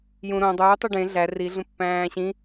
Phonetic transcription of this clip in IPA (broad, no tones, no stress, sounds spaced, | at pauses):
j ũ ɾ õ dˤ uː tˤ u ɖ ẽ ɮ æ r i ɮ ũ pː æ̃ː ɕ ĩ